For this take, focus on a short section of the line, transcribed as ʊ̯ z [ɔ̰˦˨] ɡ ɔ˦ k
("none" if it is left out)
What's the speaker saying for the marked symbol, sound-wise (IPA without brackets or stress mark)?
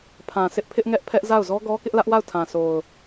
ɔ˦